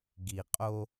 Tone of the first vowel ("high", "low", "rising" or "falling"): low